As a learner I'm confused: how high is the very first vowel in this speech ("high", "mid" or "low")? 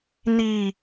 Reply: high